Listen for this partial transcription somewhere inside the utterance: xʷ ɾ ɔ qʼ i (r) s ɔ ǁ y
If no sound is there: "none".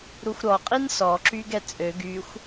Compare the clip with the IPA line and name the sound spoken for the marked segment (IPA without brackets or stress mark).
n